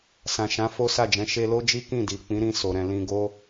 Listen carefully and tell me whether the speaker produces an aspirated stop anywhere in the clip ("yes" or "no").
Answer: no